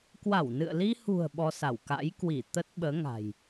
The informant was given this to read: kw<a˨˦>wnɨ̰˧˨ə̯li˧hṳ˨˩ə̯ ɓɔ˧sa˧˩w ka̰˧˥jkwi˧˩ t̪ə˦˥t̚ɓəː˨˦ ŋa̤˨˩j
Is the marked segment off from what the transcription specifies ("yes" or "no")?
yes